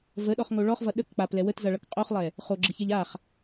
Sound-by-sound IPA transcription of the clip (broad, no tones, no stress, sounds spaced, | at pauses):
v ə ɗ ɔ χ ŋ o ɭ ɔ χ v ʌ ɗ ə k k͡p a p l ɛ w ə t z ʌ ɭ ʌ k qʼ o χ lˠ ɛ | χ o ɡ͡ǁ ə ç ɛ ʎ a χ